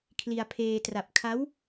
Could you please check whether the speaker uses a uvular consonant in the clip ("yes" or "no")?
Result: no